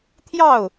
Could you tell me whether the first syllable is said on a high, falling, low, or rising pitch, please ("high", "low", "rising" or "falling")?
falling